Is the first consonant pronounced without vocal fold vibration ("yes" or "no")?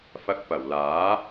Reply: yes